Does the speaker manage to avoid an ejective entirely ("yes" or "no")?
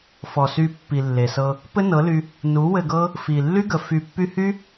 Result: yes